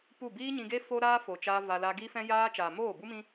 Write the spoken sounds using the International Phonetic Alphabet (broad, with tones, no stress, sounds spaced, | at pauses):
p u˦˨ b iː˦ ɲ ĩ˧ ɡ e˦ f o˦ ɾ aː˦ f o˨ t͡ʃ a˧ v a˧ l a˧ ɡ i˦ f ɛ̃˦ j aː˦ t͡ʃ aː˨ m oː˦˨ b u˦ m ĩ˦